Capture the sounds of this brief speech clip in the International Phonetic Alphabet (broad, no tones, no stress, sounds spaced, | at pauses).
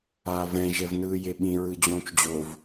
aː v ɛ̃ ʒ ɛ v n ɯː j e ɓ ĩ ɹ ɯ d͡ʑ õː t͡ʃ d͡ʑ o v